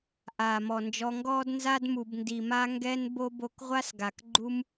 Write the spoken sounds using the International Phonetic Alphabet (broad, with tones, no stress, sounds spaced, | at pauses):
ʔ aː˨ m ɔ˨ n d͡ʒ ɔ˧ ŋ ɡ ɔː˦ d n z a˦ d m u˨ b n d i˨ m a˦ ŋ ɡ ɛ˦ n b o˦ b o˧ k ʁʷ a˦ s ɡ a˨ k ɡ͡ǃ u˦ m